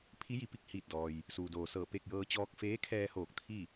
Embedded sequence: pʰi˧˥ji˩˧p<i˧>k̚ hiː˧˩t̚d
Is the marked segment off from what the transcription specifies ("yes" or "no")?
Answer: yes